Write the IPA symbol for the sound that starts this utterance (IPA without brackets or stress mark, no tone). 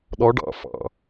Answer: ɗ